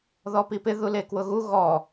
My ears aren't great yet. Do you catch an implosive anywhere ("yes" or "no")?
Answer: no